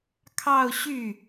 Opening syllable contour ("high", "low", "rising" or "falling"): falling